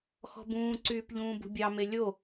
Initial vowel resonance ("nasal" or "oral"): oral